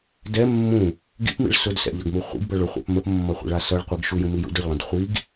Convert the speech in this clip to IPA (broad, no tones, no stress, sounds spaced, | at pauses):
d ɛ mː ũ | ɡ ḭ p m ḭ ɭ s ʊ d s ɛ̰ ʎ ʌ ɡ m u χʷ ḭ ɡ b ʌ ɭ ʊ χʷ ɛ̰ p m ə p mː ʌ χʷ ḛ ɭ a s ʌ ɭ qʷ ɯ ɡ ʃ u j ũ m i j ṵ d ʊ ɭ lˠ ə̃ d χʷ i ɡ